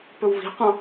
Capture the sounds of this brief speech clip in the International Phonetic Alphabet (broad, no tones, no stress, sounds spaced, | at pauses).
p ɵ w v i̤ qʷ ɑ̃